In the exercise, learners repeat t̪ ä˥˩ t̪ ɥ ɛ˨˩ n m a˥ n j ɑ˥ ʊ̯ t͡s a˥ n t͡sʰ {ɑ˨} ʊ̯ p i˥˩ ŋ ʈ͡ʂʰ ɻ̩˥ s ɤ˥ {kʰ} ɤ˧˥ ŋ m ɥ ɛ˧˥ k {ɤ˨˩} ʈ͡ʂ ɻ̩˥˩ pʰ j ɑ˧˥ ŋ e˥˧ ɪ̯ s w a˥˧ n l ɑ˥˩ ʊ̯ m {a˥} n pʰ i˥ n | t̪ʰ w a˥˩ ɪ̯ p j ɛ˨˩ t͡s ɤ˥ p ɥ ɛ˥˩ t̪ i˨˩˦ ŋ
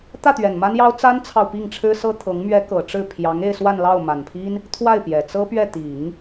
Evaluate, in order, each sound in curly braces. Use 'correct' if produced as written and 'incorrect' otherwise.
correct, incorrect: t̪ʰ, correct, incorrect: a˨˩

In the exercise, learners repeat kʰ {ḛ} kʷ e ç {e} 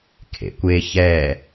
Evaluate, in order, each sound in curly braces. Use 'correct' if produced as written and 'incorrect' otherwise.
correct, incorrect: ɛ

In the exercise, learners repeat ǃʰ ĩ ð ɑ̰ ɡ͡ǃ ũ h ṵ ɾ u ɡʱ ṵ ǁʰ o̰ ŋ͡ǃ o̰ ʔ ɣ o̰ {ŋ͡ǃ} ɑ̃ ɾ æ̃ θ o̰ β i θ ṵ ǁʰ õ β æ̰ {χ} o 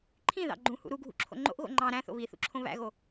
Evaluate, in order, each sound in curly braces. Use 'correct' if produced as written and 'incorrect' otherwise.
correct, incorrect: ɣ

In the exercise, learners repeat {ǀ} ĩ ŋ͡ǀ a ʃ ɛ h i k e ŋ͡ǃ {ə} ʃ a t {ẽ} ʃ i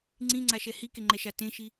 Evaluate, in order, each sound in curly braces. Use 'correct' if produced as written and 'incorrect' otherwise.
incorrect: ŋ͡ǀ, incorrect: ɛ, correct

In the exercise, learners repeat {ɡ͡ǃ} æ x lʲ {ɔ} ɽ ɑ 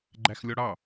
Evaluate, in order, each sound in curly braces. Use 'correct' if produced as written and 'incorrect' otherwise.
correct, correct

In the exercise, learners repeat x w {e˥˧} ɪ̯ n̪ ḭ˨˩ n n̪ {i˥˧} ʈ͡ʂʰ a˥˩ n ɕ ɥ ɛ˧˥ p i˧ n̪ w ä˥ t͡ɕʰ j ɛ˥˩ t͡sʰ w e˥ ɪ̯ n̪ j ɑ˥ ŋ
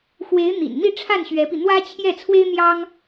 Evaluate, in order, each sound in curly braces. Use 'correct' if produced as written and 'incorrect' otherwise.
incorrect: e˧˥, correct

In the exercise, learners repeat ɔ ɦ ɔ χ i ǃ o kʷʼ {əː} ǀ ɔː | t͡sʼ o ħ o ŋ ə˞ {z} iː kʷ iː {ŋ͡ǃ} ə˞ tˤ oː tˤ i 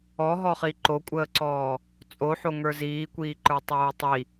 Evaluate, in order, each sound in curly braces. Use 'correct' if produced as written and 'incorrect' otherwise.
correct, correct, incorrect: ǃ

